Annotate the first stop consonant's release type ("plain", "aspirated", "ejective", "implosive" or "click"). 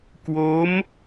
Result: plain